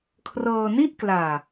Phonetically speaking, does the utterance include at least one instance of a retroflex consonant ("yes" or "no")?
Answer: no